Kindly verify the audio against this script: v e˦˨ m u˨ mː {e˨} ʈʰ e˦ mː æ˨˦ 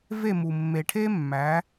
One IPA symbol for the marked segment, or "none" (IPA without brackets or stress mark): e˨